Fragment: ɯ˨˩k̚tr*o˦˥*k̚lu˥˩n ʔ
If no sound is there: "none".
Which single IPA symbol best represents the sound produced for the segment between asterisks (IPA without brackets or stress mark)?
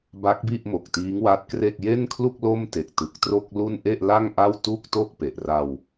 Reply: o˥˩